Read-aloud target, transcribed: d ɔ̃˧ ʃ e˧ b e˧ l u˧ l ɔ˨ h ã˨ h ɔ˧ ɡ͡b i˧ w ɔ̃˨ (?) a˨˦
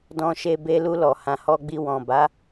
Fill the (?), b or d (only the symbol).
b